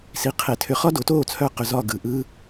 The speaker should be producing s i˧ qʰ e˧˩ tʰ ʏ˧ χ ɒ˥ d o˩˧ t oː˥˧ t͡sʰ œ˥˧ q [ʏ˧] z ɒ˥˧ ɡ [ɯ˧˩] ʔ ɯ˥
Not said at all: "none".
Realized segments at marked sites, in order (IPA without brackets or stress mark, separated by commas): ʏ˧, ɯ˧˩